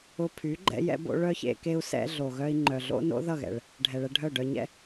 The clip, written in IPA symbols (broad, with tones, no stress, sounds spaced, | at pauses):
ʊ˧ pʰ y˨˦ ɡ͡ǃ ɛ̰˧ j ɛ̰˧ b o̰˧ ɭ œ˦ ç ḛ˧ k e˧ u̯ s ɛ̰˧ ɮ o˨ ɣ œ˦ i̯ ŋ͡ǃ œ˨ ɮ o̰˦ n o̰˦ ð ʌ˦˨ ɣ ɛ̰˨ ɭ | ɖʱ ɛ˨ ɭ ɛ˧ ɖʱ œ˦˨ ɖ œ˧ ɲ ɛ̰˦